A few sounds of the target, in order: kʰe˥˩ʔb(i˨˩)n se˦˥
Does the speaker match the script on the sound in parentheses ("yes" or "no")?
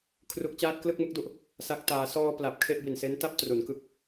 yes